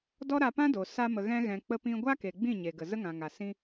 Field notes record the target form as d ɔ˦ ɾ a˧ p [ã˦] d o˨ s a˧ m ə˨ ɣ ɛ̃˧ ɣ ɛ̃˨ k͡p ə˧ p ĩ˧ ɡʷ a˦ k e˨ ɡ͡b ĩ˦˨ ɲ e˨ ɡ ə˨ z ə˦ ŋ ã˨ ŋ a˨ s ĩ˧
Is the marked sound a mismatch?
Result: no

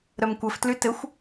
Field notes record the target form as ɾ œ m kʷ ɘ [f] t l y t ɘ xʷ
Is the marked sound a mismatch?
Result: no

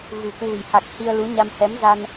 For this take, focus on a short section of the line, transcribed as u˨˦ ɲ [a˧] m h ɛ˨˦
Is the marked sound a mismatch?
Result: no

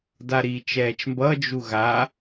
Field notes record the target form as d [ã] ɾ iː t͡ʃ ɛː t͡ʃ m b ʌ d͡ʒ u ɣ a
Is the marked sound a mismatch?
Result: yes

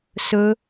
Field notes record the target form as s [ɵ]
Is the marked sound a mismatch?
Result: no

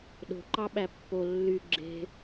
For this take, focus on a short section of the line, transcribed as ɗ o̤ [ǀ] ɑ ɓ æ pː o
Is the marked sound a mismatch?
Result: yes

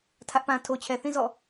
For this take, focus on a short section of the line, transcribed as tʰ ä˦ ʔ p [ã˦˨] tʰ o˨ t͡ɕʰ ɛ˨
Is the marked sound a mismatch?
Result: yes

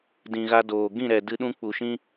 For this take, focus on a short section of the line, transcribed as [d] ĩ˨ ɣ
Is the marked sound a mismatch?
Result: no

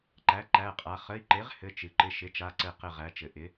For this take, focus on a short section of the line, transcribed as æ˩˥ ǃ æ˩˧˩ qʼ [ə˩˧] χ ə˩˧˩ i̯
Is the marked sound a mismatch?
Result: yes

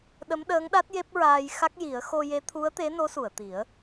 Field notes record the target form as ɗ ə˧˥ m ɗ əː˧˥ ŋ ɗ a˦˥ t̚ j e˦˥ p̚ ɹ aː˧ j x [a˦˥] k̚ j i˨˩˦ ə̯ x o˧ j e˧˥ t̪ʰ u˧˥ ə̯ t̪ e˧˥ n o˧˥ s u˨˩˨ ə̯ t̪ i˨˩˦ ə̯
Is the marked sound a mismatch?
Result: no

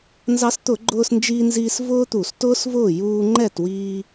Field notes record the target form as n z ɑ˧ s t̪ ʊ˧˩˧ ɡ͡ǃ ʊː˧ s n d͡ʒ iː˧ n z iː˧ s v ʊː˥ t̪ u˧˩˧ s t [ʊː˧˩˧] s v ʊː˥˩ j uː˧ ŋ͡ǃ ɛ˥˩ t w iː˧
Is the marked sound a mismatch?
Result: yes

